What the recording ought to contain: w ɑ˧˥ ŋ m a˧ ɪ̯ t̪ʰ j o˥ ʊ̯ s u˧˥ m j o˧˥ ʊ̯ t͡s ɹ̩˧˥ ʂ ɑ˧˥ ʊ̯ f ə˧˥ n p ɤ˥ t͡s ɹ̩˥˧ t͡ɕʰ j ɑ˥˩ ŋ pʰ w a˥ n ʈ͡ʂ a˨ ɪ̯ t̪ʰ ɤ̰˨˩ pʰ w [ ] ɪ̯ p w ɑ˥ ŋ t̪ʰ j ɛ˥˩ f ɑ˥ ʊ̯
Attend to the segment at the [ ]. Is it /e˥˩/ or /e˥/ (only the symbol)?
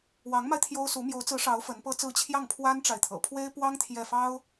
e˥